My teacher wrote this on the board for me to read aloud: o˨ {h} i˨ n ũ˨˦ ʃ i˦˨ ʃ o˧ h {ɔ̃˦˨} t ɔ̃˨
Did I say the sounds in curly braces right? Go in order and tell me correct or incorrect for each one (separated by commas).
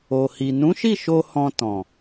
correct, incorrect